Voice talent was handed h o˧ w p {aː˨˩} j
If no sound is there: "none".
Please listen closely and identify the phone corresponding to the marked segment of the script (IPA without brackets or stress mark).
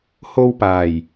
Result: aː˨˩